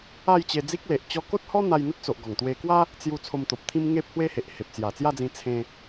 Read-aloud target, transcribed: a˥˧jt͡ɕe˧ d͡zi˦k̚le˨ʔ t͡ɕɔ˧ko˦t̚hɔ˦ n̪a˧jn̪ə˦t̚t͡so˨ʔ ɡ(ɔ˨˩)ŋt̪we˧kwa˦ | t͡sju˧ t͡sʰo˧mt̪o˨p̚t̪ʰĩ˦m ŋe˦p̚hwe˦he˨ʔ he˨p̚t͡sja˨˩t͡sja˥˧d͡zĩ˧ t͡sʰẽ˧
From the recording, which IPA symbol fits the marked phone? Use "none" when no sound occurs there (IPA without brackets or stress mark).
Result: ɔ˨˩